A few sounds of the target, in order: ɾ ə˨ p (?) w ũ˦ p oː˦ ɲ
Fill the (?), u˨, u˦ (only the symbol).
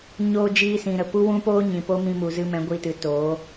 u˦